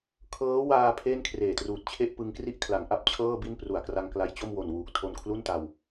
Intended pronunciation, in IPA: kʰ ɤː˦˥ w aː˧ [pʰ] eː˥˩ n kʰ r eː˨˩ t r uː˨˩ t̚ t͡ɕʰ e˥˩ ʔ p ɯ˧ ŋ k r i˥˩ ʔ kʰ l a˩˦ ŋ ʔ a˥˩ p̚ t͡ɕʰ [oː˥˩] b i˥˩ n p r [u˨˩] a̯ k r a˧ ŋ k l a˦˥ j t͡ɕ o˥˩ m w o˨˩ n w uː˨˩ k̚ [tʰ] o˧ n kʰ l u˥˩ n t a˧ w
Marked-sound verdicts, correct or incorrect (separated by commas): correct, incorrect, correct, correct